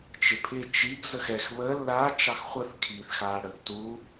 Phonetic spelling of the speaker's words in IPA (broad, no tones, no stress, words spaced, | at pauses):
t͡ʃɪpʰɪ t͡ʃiɡ zəxɛx βə la t͡ʃɑxχʷəθ kʰiːθxaːɽəːɡtu